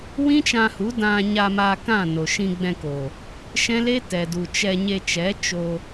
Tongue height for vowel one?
high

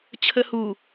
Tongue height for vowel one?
mid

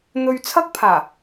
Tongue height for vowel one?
mid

